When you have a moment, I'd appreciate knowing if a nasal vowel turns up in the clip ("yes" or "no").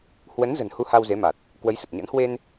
no